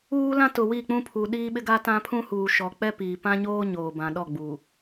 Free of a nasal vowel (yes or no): no